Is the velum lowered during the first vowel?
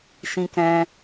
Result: yes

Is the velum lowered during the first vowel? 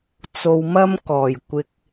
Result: no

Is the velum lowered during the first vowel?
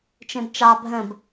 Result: yes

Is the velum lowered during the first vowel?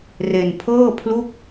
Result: no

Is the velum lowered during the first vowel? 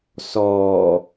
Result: no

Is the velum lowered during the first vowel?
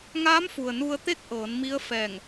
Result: no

